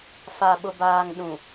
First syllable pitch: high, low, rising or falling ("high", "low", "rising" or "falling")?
low